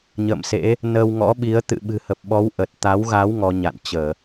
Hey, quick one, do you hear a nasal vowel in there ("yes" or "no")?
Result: no